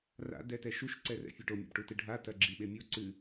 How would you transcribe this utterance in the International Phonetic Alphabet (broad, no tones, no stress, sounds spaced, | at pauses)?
r a̰ d ɛ t ɛ ʃ u ʃ ǀ ɛ r ɛ̰ fʲ e ʈ o mʲ a̰ b ʈ u t ɨ ɖʱ a t ɐ ɡ͡ǁ i ɓ e mʲ o ǀ ɨ